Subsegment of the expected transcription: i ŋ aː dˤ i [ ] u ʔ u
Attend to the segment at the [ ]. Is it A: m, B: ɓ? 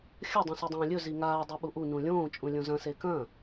B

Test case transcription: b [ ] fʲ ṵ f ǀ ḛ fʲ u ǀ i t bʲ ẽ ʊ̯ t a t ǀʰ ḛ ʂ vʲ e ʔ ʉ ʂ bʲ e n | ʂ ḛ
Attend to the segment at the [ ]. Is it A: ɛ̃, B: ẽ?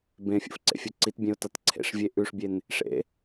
B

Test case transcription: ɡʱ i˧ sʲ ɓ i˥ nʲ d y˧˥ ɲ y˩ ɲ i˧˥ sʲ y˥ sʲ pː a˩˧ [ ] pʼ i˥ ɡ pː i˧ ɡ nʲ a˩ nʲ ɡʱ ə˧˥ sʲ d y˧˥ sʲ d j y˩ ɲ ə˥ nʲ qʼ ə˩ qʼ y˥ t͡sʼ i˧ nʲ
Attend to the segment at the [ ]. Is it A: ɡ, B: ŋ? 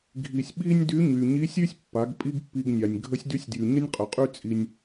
A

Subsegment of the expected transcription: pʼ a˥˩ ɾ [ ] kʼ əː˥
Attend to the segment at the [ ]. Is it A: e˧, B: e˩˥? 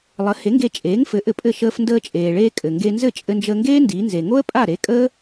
B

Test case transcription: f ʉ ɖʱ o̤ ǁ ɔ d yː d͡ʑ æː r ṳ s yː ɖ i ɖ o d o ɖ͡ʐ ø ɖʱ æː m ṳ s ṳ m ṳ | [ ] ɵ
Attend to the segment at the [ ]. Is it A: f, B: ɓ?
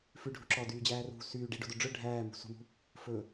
A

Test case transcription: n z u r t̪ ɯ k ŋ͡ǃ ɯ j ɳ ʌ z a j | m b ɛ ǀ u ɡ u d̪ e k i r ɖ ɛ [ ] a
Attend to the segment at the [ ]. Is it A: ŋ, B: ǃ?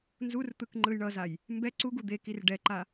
B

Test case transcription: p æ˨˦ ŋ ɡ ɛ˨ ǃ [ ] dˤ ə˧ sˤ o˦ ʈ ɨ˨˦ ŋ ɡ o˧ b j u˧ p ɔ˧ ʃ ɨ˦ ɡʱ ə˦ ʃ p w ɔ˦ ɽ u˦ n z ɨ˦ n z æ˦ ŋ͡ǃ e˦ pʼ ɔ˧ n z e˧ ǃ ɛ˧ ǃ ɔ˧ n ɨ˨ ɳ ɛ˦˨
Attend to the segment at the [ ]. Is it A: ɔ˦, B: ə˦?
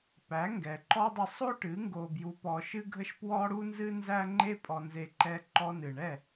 A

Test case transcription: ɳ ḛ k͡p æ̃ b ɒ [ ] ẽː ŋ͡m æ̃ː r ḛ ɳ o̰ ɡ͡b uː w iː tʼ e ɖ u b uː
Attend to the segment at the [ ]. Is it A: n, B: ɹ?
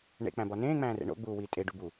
A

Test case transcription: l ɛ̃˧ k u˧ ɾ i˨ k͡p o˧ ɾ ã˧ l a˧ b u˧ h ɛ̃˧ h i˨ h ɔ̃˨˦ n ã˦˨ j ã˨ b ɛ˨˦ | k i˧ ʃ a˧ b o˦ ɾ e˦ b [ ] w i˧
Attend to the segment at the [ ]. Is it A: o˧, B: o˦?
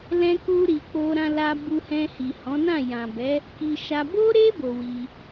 A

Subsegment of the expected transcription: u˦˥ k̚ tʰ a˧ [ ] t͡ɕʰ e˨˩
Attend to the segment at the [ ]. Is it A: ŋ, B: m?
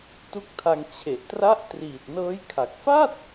A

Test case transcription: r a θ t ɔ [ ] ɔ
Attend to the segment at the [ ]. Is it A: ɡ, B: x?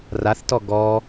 A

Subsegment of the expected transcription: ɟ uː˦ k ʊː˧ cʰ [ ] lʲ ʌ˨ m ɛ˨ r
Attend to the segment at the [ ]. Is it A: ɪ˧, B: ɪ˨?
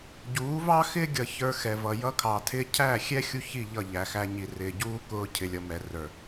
B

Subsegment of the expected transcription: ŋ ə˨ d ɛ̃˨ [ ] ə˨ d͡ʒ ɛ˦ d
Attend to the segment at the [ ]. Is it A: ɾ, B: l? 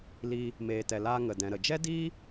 A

